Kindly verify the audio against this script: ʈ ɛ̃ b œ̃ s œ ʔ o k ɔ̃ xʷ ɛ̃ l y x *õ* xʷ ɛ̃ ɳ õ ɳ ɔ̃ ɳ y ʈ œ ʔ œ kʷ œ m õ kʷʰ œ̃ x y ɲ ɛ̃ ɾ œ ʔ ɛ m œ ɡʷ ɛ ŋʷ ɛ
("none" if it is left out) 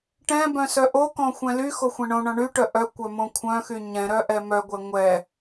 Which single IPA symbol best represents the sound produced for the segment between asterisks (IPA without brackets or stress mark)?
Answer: o